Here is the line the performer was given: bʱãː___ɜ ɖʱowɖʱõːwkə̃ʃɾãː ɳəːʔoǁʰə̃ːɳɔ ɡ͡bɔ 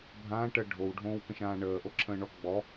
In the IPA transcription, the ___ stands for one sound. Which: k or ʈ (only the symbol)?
ʈ